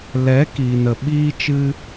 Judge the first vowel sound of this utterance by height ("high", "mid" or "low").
mid